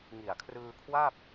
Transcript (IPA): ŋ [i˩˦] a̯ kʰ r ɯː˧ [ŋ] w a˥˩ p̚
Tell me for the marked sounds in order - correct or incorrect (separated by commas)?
incorrect, incorrect